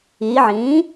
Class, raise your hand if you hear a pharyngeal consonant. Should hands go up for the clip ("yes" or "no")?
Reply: yes